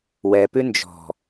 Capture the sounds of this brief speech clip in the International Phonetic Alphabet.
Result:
wɛpʉ nd͡ʒɔ̤

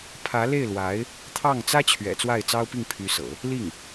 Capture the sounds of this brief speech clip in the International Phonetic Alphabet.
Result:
pʰä˧˥le˥˩ɪ̯lwa˧˥ɪ̯ | t̪ʰɑ˥˩ŋ t͡sä˥t͡ɕʰɥɛ̰˨˩ t͡swa˥˩ɪ̯t͡sɑ˥ʊ̯pi˥˩ŋ pʰy˧˥sɤ̰˨˩˦ | li˥˩ŋ

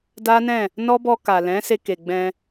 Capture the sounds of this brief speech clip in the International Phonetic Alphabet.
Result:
da˦nɛ̃˦˨ | nɔ˦bɔ˧ ka˨lɛ̃˨˦se˧ ke˨ɡ͡bɛ̃˧

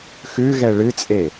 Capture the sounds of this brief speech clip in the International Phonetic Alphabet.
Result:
xʉɣɛ ɭɨt͡sʼe

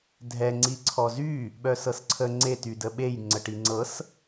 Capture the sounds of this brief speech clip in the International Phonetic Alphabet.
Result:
dʱɛ ŋ͡ǀiǀʰɔzy | ɓœsɤsǀʰə ŋ͡ǀe tydəɓej ŋ͡ǀəʈiŋ͡ǀɤs

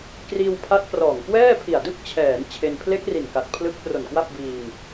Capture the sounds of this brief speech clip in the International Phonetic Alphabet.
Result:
kriː˧wpʰa˦˥t̚prɔː˨˩ŋ kwɛː˥˩pʰi˨˩a̯dɯ˥˩k̚t͡ɕʰɛː˩˦n t͡ɕʰe˧n pʰle˦˥k̚ ri˨˩n ka˨˩t̚pʰlɯ˦˥k̚pro˨˩nkwa˥˩p̚ biː˧ŋ

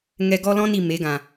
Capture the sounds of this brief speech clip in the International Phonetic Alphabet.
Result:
ŋɛ˧ɡɔ˦lɔ̃˦ni˨ me˨˦ɡã˨

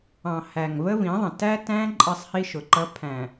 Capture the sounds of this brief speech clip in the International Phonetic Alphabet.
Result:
ɑ̃˨ hæ˨ŋvə˦vĩ˨˦ðˤə̃˨ tæ˦tæ̃˦ ǃʼʌ˦sˤhi˦ʃʊ˨ǃʌ˦ pʰæ̃˨

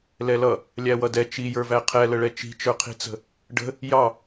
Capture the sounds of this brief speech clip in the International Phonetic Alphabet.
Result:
lɛlʌ | lʲæwʌdɛ t͡ʃijə˞væ qʰɛləɭɛ t͡ʃi̤t͡ʃə˞qʰi̤t͡sə̤ | ɖə̤ | jɑ

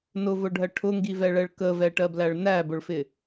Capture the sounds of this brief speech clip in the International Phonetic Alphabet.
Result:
nʊvʊɖʱɜ ʈʰʊŋɡivɛɭɛɭ kəvɛʈɜblæɭ næbʊɭfɪ

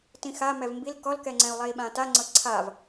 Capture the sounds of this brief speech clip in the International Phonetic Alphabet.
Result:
tĩxa mɛvmbil kɔlkɛŋ͡ǀɛ̃u̯ lˠei̯ɓãtaŋ͡ǀɤ ǀʰav

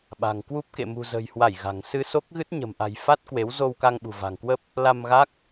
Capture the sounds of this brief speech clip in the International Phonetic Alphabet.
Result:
ɓa̤˨˩ŋkwu˦˥p̚ kḛ˧˨mṳ˨˩zə̤ː˨˩jhwa˧˩j ɣa̤˨˩ŋ sɨ˧so˦˥k̚ɣɨ˦˥t̚ ɲə̤˨˩mʔa̤˨˩jfa˦˥t̚ kwe˨˦wzo˧wka˧ŋ ɓṳ˨˩va̤˨˩ŋkwə˦˥p̚ | la˧mɣa˦˥k̚

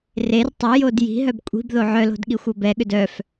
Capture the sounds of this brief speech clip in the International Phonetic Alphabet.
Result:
rer tˤʏjod ji̤ɦœb kʷʼi̤bðo ʕœlo̤d ɠixʷɤbɛɠʏd œf

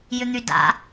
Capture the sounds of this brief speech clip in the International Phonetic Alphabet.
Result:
jʏn̪yda̰

